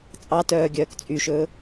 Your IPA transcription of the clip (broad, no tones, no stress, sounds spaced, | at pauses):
t͡sʼ ɑ t œː ɡʲ œː k t͡sʼ y ʃ ɵː